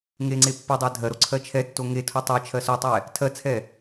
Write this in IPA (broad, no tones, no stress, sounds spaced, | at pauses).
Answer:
ŋ e ŋ͡ǀ e pː o dˤ ɜ dʱ ɜ ɾ o ǀʰ ɜ t͡ʃʰ ɛ tː o ŋ e tʰ o tˤ e t͡ʃʰ ɜ s o tˤ ɛ | tʰ ɜ t͡sʰ ɛ